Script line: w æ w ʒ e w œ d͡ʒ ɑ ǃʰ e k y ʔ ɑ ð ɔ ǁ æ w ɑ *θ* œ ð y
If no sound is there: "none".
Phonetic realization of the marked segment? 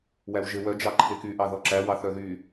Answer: θ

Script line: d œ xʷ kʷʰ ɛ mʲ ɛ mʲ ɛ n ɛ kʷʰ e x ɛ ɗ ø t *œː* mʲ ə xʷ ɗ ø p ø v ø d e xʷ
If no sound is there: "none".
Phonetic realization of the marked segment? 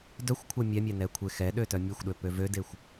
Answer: œ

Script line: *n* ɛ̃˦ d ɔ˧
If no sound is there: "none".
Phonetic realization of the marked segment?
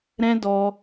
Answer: ɾ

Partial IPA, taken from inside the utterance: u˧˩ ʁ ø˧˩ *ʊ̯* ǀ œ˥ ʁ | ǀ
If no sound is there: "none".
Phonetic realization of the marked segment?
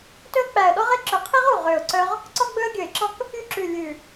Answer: ʊ̯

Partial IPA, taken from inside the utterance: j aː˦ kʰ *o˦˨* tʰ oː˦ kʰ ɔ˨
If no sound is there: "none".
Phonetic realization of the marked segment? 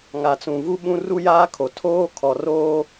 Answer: o˨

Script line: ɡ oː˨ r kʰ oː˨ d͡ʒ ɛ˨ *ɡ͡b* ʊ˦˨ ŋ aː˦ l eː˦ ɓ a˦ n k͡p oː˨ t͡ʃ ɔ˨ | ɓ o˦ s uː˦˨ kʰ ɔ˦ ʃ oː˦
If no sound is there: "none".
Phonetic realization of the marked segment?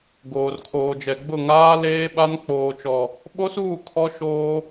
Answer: ɡ͡b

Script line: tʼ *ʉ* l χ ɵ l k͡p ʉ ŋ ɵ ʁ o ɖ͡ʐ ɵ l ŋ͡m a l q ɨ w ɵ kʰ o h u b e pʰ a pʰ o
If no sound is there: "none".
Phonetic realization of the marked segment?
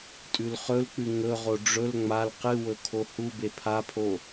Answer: ʉ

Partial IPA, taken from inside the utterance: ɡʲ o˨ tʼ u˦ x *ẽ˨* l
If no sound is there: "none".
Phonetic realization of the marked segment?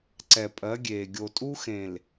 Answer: ẽ˨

